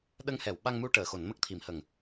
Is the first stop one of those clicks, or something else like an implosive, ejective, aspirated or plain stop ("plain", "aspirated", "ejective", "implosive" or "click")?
implosive